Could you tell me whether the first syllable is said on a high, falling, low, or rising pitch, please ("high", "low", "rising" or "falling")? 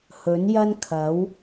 rising